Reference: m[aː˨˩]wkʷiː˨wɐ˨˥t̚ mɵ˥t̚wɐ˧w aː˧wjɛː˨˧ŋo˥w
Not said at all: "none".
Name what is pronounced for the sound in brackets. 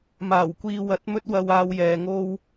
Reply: aː˨˩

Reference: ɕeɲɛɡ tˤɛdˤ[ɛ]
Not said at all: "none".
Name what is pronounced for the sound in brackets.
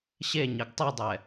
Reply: ɛ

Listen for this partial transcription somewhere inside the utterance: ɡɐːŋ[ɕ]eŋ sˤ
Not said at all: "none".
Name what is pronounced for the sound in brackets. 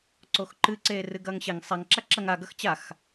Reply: ɕ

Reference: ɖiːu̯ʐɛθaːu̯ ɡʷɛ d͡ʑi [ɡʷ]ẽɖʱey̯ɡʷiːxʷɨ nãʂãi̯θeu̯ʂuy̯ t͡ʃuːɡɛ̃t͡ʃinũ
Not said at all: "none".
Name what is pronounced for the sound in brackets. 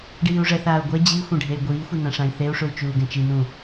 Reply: xʷ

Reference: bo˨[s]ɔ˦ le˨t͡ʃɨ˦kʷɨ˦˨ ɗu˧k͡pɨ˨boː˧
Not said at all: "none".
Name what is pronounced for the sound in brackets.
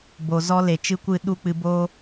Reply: z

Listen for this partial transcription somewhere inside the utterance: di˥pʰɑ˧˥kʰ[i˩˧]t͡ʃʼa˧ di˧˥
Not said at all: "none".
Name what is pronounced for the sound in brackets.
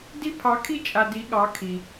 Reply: i˥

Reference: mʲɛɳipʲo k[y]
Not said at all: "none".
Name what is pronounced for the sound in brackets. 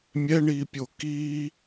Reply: i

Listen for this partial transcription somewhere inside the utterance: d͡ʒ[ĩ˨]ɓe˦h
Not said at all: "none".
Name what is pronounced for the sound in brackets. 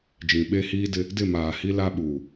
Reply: ĩ˨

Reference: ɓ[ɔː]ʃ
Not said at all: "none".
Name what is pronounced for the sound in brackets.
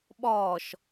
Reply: ɔː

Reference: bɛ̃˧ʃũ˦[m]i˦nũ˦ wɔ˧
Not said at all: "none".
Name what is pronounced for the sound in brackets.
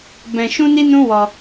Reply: n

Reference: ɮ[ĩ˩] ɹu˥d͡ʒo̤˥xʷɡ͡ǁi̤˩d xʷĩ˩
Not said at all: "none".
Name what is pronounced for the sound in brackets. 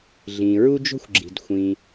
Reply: ĩ˩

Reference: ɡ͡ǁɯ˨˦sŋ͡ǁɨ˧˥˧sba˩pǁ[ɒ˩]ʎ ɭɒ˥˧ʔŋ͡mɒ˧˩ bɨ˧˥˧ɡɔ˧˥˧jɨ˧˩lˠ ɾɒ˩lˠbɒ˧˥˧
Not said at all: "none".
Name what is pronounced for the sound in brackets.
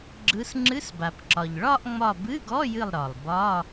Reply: ɒ˩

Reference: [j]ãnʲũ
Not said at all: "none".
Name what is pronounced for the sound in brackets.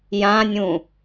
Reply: j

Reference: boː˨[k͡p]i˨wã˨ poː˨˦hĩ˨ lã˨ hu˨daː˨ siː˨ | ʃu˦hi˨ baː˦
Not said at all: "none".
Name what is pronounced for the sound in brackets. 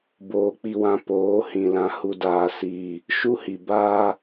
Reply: k͡p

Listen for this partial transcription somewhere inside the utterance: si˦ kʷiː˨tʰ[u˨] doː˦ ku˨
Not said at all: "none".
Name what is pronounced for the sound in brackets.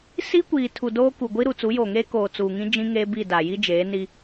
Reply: u˨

